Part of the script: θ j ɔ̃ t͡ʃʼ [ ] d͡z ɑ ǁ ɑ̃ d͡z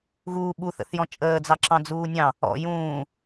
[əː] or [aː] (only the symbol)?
əː